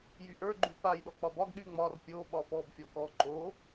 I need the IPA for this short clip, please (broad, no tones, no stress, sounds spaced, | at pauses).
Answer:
j y ʔ ə˞ ɡ͡ǃ y p a j ɗ ɔ k͡p ɒ b ɒ ɡ ɗ y ŋ͡m ɒ r pʲ o ɓ ɒ f ɔ b fʲ ɔ k ɔ ǃ o